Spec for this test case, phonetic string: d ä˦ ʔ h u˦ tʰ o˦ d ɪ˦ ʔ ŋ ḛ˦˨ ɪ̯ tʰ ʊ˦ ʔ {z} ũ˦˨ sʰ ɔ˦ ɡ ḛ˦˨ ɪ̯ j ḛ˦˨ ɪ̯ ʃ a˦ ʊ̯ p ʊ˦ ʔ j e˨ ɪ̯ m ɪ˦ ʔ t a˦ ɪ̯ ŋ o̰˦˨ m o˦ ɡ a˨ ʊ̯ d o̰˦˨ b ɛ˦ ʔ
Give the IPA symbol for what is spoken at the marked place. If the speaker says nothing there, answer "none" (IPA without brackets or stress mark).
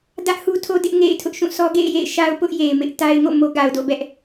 ʃ